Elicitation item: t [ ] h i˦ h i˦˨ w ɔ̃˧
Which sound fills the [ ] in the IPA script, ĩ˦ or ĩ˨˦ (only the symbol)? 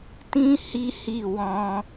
ĩ˦